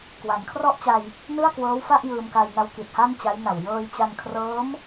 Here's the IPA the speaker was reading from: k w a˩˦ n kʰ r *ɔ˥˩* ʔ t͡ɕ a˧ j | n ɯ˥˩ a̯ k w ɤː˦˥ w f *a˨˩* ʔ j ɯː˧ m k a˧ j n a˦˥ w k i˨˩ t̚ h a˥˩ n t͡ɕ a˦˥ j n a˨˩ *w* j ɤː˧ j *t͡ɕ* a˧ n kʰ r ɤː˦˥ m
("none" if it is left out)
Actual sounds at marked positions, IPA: ɔ˥˩, a˥˩, w, t͡ɕ

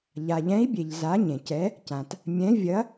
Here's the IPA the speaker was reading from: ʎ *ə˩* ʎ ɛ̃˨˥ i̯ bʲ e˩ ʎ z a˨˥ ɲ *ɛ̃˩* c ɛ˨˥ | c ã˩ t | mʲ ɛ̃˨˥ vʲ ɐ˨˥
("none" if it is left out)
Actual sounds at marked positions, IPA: a˩, ẽ˩

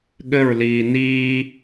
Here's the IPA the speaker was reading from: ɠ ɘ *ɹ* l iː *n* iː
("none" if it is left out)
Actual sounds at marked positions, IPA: ɹ, n

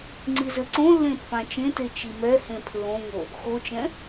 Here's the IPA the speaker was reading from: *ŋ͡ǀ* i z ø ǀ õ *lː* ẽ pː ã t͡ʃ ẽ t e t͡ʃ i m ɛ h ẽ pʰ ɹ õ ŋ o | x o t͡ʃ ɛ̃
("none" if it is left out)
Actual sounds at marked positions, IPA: ŋ͡ǀ, lː

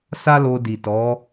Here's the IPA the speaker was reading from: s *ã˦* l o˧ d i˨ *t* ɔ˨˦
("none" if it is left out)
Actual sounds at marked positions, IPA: a˦, t

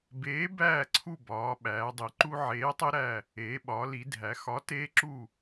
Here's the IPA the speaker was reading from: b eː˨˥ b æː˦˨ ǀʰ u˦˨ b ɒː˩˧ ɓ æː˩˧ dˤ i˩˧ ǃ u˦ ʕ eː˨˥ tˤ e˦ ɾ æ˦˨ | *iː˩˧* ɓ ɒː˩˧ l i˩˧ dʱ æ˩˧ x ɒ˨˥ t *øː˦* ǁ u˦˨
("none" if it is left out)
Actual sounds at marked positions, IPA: eː˩˧, eː˦

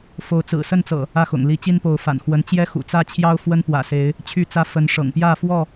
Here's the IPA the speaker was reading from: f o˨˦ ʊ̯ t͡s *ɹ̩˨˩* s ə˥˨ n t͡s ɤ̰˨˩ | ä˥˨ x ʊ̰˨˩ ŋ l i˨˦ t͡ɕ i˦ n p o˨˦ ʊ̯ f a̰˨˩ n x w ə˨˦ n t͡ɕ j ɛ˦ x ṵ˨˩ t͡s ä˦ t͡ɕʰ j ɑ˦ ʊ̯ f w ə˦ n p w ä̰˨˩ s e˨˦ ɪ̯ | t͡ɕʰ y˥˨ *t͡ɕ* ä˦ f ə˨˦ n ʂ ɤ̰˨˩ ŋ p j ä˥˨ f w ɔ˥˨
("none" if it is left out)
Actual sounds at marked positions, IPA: ɹ̩˨˩, t͡s

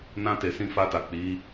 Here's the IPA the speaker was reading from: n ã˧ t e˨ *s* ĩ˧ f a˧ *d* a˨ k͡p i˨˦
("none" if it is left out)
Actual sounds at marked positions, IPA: s, t

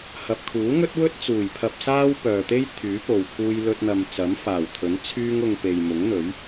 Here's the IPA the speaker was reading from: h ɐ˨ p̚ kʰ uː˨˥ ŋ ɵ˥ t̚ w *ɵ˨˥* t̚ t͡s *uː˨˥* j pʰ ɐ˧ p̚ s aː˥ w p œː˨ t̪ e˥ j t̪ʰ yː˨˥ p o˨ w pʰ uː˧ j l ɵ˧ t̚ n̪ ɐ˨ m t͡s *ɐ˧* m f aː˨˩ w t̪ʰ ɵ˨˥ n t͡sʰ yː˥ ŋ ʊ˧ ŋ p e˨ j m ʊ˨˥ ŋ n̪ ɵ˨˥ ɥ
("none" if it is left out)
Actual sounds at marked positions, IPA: ɵ˥, uː˨˩, ɐ˨˥

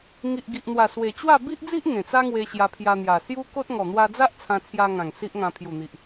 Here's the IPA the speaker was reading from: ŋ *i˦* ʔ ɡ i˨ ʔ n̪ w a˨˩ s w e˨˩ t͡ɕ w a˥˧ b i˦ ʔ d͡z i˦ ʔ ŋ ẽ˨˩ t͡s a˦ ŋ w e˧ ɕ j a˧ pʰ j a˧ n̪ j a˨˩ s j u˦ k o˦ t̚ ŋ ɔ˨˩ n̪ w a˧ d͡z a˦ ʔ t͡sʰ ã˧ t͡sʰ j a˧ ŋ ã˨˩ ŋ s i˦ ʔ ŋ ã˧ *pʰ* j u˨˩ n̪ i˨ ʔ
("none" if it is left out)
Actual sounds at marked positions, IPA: i˨, pʰ

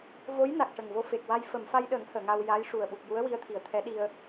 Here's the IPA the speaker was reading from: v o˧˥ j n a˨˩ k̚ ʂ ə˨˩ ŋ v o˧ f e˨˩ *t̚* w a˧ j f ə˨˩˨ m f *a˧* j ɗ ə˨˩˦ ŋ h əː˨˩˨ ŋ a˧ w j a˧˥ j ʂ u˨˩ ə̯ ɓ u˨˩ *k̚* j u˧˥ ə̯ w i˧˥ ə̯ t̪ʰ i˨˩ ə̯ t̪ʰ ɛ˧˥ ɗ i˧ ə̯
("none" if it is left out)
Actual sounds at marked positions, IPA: k̚, a˧, k̚

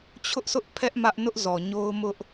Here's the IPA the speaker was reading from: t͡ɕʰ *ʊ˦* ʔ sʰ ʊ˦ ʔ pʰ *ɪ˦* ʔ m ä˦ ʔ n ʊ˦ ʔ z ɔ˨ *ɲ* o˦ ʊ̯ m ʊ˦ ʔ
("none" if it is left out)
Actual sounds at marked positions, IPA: ʊ˦, ɛ˦, ɲ

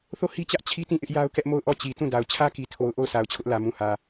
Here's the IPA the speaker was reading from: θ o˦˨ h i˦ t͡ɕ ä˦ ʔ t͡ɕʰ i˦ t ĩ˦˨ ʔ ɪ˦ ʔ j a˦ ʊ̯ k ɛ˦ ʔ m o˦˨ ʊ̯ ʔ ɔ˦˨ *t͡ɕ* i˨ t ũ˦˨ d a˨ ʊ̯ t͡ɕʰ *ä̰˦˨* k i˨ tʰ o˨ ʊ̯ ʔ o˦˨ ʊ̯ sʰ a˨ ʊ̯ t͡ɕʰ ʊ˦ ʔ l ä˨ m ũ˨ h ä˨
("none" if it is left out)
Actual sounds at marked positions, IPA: t͡ɕ, ä˦

